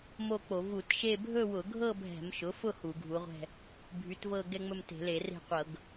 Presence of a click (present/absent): absent